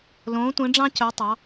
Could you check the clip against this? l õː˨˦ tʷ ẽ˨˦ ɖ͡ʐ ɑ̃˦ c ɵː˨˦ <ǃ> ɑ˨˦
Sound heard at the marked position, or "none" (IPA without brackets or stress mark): tˤ